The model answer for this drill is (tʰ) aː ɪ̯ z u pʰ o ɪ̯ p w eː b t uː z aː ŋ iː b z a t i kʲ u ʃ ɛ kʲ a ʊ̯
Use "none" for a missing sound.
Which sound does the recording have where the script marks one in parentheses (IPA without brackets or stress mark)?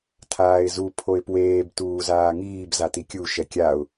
tʰ